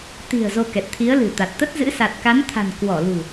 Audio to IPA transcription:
t̪i̤˨˩ə̯ zo˧kɛ˨˩t̚t̪ʰi˨˦ə̯ lɨ̤˨˩t̪a˨˩t̚t̪ə˦˥t̚zɨ̰˧˥ sa˨˩t̚ka˨˦nt̪ʰa̤˨˩n kwɔ˧˩lṳ˨˩

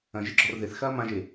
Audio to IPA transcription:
ɐ̃ʒeɡ͡ǁɔr ðeθ xɐːmãʒe

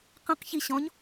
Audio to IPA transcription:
qə̃q çiɕɔ̃ɲ

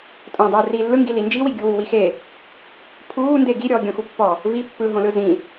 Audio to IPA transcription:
tʼõ dˤuːriːlːɯŋɡi lind͡ʒiwi ɡʲuwuwixe | pʰuːnde ɡiɾʲɔːɡʲõxu pːɔ | vi pːɯɦõlɯ zĩ

